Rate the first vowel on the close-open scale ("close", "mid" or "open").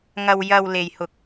open